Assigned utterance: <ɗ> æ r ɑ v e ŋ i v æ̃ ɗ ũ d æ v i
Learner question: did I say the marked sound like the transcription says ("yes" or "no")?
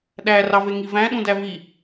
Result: yes